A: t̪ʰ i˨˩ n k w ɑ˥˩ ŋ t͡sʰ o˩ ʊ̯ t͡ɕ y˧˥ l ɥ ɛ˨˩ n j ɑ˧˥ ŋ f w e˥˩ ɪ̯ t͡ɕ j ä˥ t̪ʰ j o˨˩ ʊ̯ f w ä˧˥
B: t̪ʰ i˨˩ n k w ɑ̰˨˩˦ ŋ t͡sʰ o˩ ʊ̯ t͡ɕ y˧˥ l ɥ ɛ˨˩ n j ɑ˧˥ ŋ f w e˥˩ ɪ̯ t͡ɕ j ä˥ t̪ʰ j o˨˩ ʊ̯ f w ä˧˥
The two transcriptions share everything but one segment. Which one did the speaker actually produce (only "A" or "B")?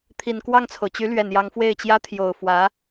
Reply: A